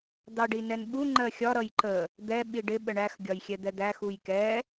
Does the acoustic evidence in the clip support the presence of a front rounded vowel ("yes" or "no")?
no